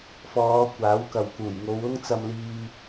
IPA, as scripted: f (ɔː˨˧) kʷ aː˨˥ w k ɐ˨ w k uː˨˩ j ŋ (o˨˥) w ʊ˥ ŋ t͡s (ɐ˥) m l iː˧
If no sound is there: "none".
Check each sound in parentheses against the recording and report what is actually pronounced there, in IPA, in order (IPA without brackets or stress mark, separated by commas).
ɔː˨˧, o˨˧, ɐ˧